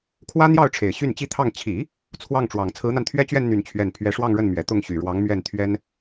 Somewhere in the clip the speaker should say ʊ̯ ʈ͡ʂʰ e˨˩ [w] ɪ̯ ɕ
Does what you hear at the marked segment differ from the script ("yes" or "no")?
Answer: yes